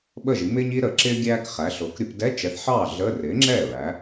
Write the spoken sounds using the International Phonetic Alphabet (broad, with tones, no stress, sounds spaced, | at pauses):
ɓ ə˥˩ ʒ i˩˥ m ɪː˥ ɲ i˥ ɾ ə˩˥ ǁ ɪː˥ ɡʲ æː˥ k χ æ˩˥ ɬ ʊː˩˥ k ɾʲ ʊ˩˥ p d ɛ˧˥˧ t͡ʃ ɛ˩˥ θ ħ ɑː˥˩ ɮ ə˧˥˧ r ɪː˩˥ ŋ͡ǁ ɛː˥˩ ɹ æ˩˥